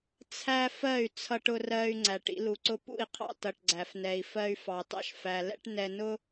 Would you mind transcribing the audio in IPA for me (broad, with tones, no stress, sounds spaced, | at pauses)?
t͡sʰ æ˦ f ɜ˦˨ y̯ t͡sʰ ʌ˦ ʈ ʊ˦ r ɜ˦ y̯ ŋ͡ǀ æ˨ ʈ ḭ˦ l u˨ ǀ ʊ˦ p ṵ˦˨ i̯ qʰ ɑ̰˦ t ʌ˨ ʈ ɡ͡ǀ æ˨ f n ɛ˨ i̯ f ɜ˦ y̯ f ɑ˨ t ɑ̰˦ ʃ f æ˨ l ɛ̰˦ ʈ n ɛ˨ n ʊ˦